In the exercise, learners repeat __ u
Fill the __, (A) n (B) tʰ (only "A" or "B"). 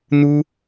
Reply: A